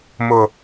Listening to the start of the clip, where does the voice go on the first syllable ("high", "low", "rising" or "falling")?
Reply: low